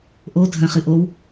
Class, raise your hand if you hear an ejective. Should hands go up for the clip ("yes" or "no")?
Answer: no